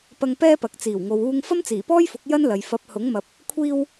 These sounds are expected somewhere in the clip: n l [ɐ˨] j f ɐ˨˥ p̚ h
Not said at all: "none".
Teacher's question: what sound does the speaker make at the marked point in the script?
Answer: ɐ˨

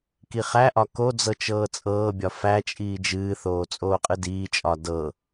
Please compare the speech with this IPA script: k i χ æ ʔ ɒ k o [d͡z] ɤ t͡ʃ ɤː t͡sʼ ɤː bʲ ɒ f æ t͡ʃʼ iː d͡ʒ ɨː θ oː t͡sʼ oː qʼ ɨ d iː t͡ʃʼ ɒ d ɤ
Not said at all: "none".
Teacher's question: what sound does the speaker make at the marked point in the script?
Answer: d͡z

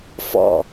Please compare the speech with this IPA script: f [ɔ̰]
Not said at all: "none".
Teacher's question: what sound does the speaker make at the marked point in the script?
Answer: ɔ̰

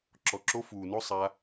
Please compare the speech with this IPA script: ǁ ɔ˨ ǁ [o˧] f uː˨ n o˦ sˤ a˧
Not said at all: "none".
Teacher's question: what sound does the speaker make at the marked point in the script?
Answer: o˧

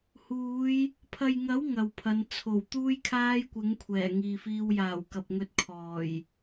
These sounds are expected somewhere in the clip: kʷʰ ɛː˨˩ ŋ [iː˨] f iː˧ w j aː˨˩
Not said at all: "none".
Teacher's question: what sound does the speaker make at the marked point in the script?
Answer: iː˨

